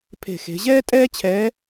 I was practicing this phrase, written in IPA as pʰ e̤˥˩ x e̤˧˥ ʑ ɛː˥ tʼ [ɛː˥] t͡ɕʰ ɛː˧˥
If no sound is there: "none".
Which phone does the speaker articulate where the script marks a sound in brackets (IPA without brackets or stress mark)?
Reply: ɛː˥